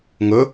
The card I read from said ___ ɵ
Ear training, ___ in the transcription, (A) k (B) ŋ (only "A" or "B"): B